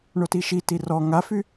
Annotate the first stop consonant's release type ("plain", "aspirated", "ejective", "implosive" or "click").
plain